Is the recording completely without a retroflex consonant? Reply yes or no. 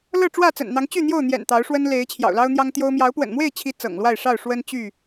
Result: no